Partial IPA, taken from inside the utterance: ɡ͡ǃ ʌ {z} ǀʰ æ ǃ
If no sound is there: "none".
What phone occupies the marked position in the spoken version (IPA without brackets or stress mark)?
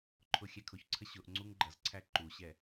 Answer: z